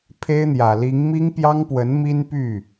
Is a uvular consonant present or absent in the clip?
absent